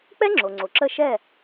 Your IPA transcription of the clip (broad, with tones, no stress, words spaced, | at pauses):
k͡pɛ˥ ŋ͡ǁo˩ ŋ͡ǀo˩ǁə˥˩ʃɛ˥˩